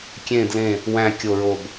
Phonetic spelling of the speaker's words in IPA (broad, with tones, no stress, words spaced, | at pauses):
kʲẽ˨˩dlẽ˨˩ | wæ̃˨˩kʲo˨˩ɹo˨˩b